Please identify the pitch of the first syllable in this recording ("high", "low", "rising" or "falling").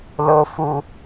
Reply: low